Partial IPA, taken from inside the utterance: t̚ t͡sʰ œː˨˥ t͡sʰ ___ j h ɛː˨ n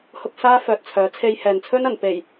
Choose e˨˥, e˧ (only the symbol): e˧